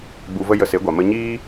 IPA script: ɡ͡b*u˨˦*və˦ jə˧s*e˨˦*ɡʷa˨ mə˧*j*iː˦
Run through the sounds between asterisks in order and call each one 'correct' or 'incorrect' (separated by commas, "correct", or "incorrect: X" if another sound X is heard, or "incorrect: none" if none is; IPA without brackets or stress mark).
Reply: incorrect: u˧, correct, incorrect: ɲ